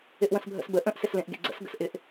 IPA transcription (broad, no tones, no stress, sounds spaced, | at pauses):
ɪ ʔ w ə̃ s bʱ ə̰ s b ə ʔ ə̃ ʔ s ɪ s l ẽ ʔ ɡ ḛ ɡ͡ǀ ə̰ s ɡ ə̰ s ʔ ɪ ʔ